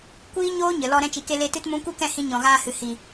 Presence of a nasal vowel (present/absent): present